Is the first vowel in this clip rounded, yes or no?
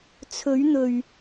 yes